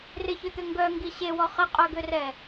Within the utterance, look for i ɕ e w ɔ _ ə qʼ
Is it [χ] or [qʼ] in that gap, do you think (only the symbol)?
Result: χ